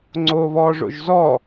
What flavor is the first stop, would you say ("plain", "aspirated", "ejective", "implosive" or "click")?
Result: click